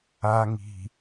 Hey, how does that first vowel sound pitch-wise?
low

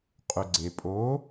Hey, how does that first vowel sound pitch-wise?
low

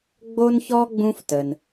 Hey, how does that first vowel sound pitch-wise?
high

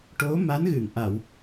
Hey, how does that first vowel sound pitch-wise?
rising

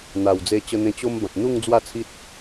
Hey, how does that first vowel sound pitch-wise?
low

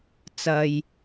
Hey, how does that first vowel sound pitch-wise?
low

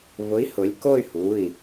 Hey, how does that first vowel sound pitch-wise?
rising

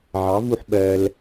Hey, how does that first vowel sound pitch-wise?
rising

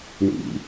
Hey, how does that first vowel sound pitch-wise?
low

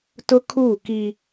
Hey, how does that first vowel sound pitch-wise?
high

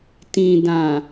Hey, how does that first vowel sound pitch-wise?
low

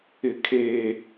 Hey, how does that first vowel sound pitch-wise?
low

